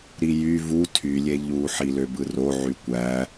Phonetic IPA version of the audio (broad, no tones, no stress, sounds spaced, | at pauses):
ɾ i j y v u tʰ y lʲ e ʎ u ħ i l ø b ɯ r o ʕ y kʷ æ